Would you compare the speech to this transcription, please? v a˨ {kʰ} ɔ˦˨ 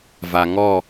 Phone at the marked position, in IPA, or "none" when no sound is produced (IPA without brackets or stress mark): ŋ